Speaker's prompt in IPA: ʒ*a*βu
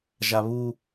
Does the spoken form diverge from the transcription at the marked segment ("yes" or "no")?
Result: no